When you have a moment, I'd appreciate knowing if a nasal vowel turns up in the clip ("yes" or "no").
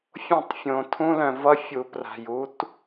yes